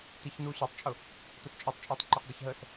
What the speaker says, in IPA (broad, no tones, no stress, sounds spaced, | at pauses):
t i ç n uː ɕ i tˤ t͡ʃʼ ʊ | t ʊ s t͡ʃʼ əː tˤ t͡ʃʼ ɛː tˤ ǃ ə χ dˤ ə ç ɦ əː s